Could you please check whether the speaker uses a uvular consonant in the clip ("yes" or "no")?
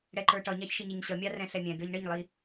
no